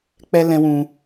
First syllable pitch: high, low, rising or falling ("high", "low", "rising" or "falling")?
high